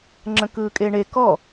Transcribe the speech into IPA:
ŋ͡ǁ ə̃ k ɯː kʼ e ɳ e k ɔ

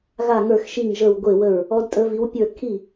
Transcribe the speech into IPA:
ɣ a˥˩ ŋ ə˞˥˩ x ʃ i˥˩ ŋ ʒ ə˥˩ w ɡʷ e˥˩ w ə˥˩ ɹ | ɔ˨˥ d tʼ ə˨˥ v i˨˥ w pʲ ə˞˥˩ kʰ i˥˩

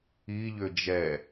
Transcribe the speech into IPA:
i ʎ ʏ d͡ʒ ɛ

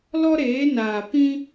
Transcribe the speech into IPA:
l ɔ˦ ɾ eː˨˦ n aː˨ p ĩ˦

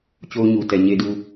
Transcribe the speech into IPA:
t͡ɕ o˦ ʊ̯ ɲ u˨ t ɛ˨ ɲ e˦ d u˦

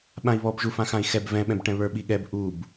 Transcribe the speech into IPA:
ɓ ã i̯ β ɔ b ʒ u f ã x ã i̯ x ɛ b v ɛ̃ ɓ ɛ̃ b ʈ ɛ̃ β ə˞ ɓ i ɠ ɛ b ʔ u b

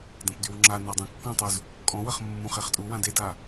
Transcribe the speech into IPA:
d ɐ̃ p d y w ŋ͡ǁ a n a dˤ ũ kː ɔ̃ tˤ u z | kʼ ɔ̃ w ɐ χ mː ũ χ e χ tʼ u w ã d e d a

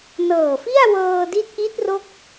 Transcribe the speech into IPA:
n ɤː˨˩ f i˥˩ a̯ w ɤː˧ d i˦˥ t̚ ʔ i˦˥ t̚ r o˥˩ k̚

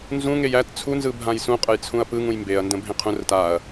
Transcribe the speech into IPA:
n z ũ ŋ e j æ t t͡sʰ u n z ɯ bʱ ã j s ũ qʼ ə j t͡sʰ ũ ɐ̯ p ɯ ŋ ũ j m b e ɐ̯ n d ə̃ bʱ ẽ qʰ ũ r ə t a ɐ̯

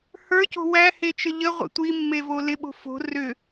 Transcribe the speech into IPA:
h ə˞ c o̤ w æ h e t͡ʃ ə ʎ ə ʁʷ ə̰ tʷ i mː e v o l ɪ ɓ o̤ f o̤ r ʏ

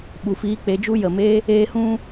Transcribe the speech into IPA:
ɓ u˨ f iː˧ k͡p e˧ d͡ʒ u˦ j ə˨ m e˦ | eː˧ h ũ˦

